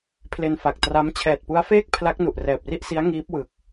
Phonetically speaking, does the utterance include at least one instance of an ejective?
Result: no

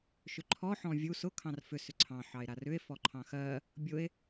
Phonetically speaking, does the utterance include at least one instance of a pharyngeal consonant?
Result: yes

